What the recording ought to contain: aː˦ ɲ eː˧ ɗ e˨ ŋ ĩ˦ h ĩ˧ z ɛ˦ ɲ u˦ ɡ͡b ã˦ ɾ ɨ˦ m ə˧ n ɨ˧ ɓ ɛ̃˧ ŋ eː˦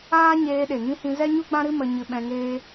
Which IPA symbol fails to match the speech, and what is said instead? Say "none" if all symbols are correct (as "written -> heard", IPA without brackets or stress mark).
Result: n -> ɲ